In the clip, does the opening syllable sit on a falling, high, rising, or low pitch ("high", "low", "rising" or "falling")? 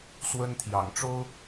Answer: high